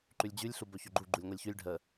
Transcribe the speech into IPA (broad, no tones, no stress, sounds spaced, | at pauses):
ǃ ʉ lʲ d͡ʑ ʉ lʲ ɬ u b ɵ ç ɵ ɡ͡ǃ u ɡ͡ǃ u lʲ ŋʷ ɛ lʲ ç ʉ lʲ ɖʱ ə